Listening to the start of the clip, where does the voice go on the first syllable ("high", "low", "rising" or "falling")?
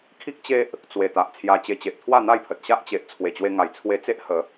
high